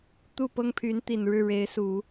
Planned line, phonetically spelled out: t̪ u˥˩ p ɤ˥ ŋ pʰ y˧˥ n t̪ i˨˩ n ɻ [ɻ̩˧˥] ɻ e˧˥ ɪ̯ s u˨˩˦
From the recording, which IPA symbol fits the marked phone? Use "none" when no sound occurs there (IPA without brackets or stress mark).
ɻ̩˥˩